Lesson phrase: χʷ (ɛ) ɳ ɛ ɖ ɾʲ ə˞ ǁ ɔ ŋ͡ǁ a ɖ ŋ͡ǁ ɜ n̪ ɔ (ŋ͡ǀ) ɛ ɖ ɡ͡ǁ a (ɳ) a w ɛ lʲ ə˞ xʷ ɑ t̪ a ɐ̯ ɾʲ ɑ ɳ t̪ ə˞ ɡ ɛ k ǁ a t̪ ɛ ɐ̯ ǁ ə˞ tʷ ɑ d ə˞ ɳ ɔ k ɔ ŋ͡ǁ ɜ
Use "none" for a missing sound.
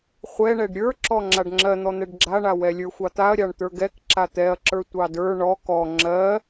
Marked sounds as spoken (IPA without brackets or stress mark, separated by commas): ɛ, n̪, ɳ